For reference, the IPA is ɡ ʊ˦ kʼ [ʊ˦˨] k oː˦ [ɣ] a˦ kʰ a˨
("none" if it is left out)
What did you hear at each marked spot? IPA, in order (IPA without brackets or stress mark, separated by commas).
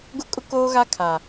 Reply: ʊ˦, ɣ